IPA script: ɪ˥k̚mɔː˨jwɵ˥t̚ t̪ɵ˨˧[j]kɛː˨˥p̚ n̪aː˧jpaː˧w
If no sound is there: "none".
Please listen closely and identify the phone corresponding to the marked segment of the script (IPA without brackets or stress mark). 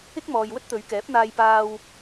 ɥ